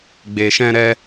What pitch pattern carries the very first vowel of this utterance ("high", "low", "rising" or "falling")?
low